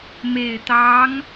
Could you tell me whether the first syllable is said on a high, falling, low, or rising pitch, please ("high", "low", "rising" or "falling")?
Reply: low